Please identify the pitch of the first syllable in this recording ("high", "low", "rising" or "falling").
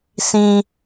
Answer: low